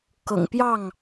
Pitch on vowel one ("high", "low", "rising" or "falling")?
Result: low